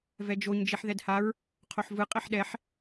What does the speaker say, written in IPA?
v ɛ d͡ʒ o ɲ d͡ʒ i ħ ð ɛ d h a ɹ | qʰ o ħ v ɯ qʼ ɛ ħ ɗ ɛ ħ

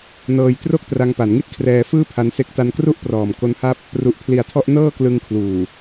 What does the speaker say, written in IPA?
n ɤː˧ j t r o˥˩ k̚ t r a˧ ŋ p a˩˦ n ŋ i˥˩ t̚ kʰ r ɛː˧ f ɯː˥˩ pʰ a˦˥ n s e˦˥ k̚ t a˦˥ n k r u˥˩ ʔ p r ɔː˨˩ m k o˦˥ n h a˥˩ p̚ | r u˨˩ ʔ pʰ l i˨˩ a̯ tʰ ɔ˦˥ ʔ n ɤː˥˩ k l ɯ˧ ŋ kʰ l uː˨˩

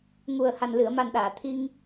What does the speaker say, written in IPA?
ŋ u˨˩ ə̯ h a˨˩ n l ɨ˨˩˨ ə̯ m a˨˩ n ɗ aː˨˩˨ t̪ʰ i˧ ŋ

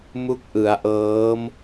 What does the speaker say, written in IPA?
m u˦˥ k̚ ʔ ɯ˩˦ a̯ ʔ ɤː˦˥ m

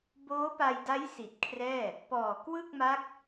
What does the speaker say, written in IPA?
b oː˦˥ p a˧ j d a˦˥ j s i˨˩ t̚ kʰ r ɛː˥˩ | p ɔː˨˩ k w ɯ˥˩ k̚ m a˦˥ k̚

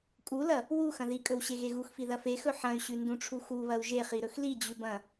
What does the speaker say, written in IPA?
kʼ u l ɐ | w u x ɐ̃ ð i kʼ ɵ w ɕ e ɣ e ɣ u x f i ð ɐ f e x ɵ ħ ɐ̃ y̯ ɕ ʉ n d ũ ʈ͡ʂʰ u x u β ɐ u̯ ʒ e χ i ɾ ɵ x l i d͡ʑ ʉ b ɐ̃

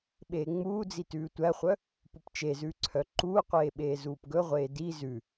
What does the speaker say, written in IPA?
ɓ eː ŋ͡m uː d͡z i t ʉː tʷ æ χʷ œ | p u p t͡ʃ e z ʉː ǀʰ œ ǃ uː qʷ eː ɓ eː z uː p ɡ ɵ ʁʷ eː d i z ʉ

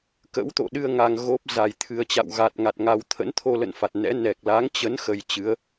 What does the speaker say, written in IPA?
k ə̰˧˥ w t̪ o̰˧˨ ɗ ɨ˧ ə̯ ŋ a˧ ŋ ɣ o˦˥ p̚ z a˨˩ j t̪ʰ ɨ˨˩ ə̯ t͡ɕ a̰˧˨ w ɣ a˨˩ t̚ ŋ a˨˩ t̚ ŋ a˧ w t̪ʰ ə̰˧˥ n t̪ʰ o˧ l ə̰˧˨ n f a˨˩ t̚ n ɛ̰˧˥ n ɛ˨˩ k̚ l a˨˦ ŋ t͡ɕ ə˨˦ n x ə˧ j t͡ɕ ɨ˨˦ ə̯

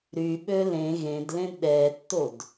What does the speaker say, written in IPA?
ɾ y ɓ ø l ẽ ɣ ẽ d l ẽ d ɗ ɛ tː o d

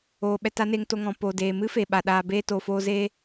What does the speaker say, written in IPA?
oː˨ ɓ ɛ˧ t a˦ n e˧ ŋ t o˧ ŋ ɔ̃˨ p o˨ d eː˨ m ɨ˦ f e˨ ɓ a˨ ɗ aː˧ b eː˦ t o˨ f oː˧ z eː˦

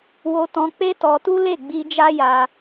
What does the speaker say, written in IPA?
w o˧ t ɔ̃˧ k͡p e˦ t ɔ˧ t u˦ l e˦˨ ɡ͡b i˧ d͡ʒ a˦ j a˧

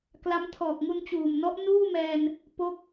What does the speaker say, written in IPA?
k l a˦˥ m tʰ ɔː˨˩ k̚ ŋ u˧ n t͡ɕ uː˨˩ m n ɔ˦˥ ʔ n uː˥˩ m ɛː˧ n | p o˥˩ k̚

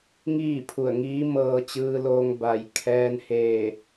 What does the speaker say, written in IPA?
ŋ iː˥˨ pʰ u˧˩ ə̯ ŋ iː˧˥ m ɤː˧ t͡ɕ ɯː˧ l oː˧ ŋ b a˩ j kʰ ɛː˧ n h eː˧˩

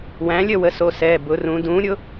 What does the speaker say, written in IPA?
w æ̃˩˥ lʲ ə˦˨ w ə˩˥ s o˩˧˩ s ɛː˩˧˩ b ʊ˩˧ r ũ˩˧ d ũː˩˥ ɾʲ ʊ˩˥

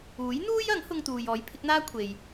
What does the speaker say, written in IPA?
uː˨˥ j n̪ uː˥ j ɐ˨˥ ŋ h ʊ˧ ŋ t̪ uː˨ j ɔː˨˥ j pʰ ɪ˨˥ k̚ n̪ aː˥ kʷʰ e˨ j

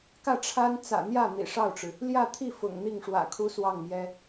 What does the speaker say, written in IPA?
k ä˥˩ ʈ͡ʂʰ a˥ n t͡s ä̰˨˩ n̪ j ä˥˩ n̪ ḭ˨˩ ʂ ɑ˥˩ ʊ̯ ʈ͡ʂ ɻ̩˩ | l j ä˥˧ t̪ʰ i˥˩ f ʊ̰˨˩ ŋ n̪ i˥˩ ŋ ʂ w ä̰˨˩ kʰ u˥ s w ɑ˥˩ ŋ m j ɛ˥

